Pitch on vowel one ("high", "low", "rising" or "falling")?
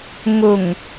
low